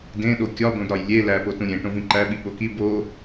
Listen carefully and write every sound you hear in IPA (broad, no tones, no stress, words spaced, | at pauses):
dẽɗo kʲɒbõdɾɒj lʲe læpo tũɾʲẽ ʈõvĩǃæɓi ɓoki bo